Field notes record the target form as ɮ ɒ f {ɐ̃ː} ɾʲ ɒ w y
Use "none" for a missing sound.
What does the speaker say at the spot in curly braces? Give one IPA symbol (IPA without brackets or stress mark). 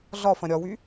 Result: ɐ̃